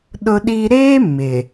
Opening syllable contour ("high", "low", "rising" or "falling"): high